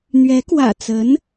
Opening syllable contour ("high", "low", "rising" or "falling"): rising